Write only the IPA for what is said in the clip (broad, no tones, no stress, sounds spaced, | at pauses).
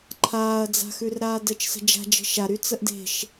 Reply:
ǃʰ aː ɐ̯ d͡z a̤ x ʉ r ɾ aː d əː t͡ʃ s ə̤ d͡ʒ a̤ d͡ʒ ə̤ ʃ a ɾ y t͡s ə ʔ d e̤ ʃ